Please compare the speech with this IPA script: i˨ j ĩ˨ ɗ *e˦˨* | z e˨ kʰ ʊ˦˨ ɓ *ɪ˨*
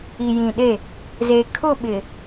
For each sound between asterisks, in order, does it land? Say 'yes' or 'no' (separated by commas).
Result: yes, yes